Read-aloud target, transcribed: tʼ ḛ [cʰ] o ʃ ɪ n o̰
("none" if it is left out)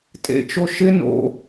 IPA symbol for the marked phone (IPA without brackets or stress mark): t͡ʃ